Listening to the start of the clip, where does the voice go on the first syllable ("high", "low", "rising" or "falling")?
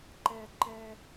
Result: high